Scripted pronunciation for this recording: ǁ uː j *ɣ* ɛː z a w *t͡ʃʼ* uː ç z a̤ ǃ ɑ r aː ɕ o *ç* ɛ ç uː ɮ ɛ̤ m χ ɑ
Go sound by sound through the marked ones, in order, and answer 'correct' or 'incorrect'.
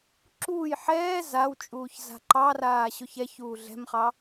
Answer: incorrect, correct, correct

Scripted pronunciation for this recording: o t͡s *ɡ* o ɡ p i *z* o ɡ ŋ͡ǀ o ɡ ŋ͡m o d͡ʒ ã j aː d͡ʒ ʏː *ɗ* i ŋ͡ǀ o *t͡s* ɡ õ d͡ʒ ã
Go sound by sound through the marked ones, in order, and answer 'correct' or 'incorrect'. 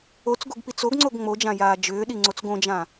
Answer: correct, incorrect, correct, correct

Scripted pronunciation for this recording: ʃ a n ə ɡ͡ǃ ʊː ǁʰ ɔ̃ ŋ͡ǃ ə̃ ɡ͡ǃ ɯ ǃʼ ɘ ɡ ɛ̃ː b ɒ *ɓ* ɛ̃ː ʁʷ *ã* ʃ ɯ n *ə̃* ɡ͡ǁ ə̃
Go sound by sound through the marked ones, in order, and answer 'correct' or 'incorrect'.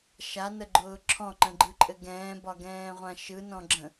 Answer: incorrect, correct, incorrect

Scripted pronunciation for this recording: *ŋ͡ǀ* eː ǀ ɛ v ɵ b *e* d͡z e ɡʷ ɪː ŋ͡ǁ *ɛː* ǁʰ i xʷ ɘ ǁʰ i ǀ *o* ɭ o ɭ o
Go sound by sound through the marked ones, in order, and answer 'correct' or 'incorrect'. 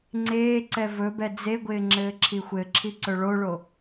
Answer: correct, incorrect, incorrect, incorrect

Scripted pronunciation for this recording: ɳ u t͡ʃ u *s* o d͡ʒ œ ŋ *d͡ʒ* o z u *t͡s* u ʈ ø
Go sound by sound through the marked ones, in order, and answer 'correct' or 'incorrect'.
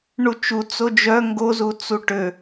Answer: incorrect, incorrect, correct

